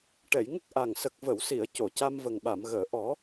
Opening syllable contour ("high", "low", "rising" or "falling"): low